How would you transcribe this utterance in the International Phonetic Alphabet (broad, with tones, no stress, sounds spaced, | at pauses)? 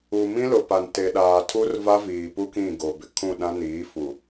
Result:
u˨ m ĩ˦ l ʊ˨ p a˨ n t e˨ ɗ aː˨ tʰ u˦ r v a˦ v iː˨ p u˦ k ĩ˦˨ ɡ o˨ b ɪ˨ kʰ ũ˦˨ ɗ ã˦ n iː˨˦ f u˨